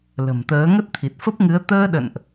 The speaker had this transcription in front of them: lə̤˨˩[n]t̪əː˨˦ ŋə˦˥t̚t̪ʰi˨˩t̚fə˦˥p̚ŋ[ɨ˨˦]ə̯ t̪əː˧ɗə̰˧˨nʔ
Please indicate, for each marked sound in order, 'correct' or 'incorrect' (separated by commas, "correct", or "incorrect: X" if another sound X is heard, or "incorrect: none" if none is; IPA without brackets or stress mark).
incorrect: m, correct